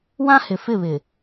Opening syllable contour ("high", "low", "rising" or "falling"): high